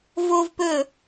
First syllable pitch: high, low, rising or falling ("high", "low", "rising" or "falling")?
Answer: high